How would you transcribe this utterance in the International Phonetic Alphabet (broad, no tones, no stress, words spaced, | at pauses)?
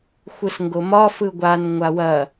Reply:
xʷɯsŋɡomɒ fɯɡʷan ŋʷawɐ